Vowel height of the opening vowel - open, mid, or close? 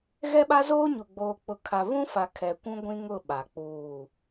mid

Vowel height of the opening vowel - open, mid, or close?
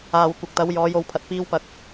open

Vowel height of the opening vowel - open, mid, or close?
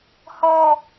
mid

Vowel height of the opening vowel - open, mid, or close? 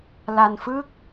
open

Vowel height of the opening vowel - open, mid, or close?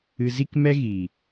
close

